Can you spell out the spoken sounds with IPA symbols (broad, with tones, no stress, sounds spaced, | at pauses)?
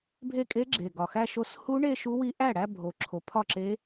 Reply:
bʱ e˥˩ kʼ e˦˥ ɡ͡ǁ e˨˩ ɡ ɒ˨˩ x æ˥˧ ʃ o˦˥ s h u˦˥ ɳ e˥˧ ʃ u˦˥ w i˦˥ ʔ æ˥˩ ɽ æ˥˧ bʱ o˨˩ ǁʰ o˨˦ pʰ ɒ˥˩ ǁ e˦˥